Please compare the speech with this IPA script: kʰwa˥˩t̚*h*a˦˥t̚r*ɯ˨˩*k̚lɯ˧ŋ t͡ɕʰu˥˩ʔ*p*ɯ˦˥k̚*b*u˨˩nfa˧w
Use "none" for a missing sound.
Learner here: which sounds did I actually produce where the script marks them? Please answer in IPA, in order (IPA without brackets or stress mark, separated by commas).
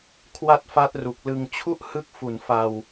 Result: f, u˨˩, h, f